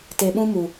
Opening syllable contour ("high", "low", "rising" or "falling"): low